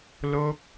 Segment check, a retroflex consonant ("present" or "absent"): absent